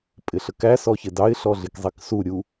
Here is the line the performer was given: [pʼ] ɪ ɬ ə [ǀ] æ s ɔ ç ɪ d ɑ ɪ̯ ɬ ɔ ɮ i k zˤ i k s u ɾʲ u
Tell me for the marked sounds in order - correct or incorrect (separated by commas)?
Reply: correct, incorrect